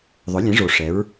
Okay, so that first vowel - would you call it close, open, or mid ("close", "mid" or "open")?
close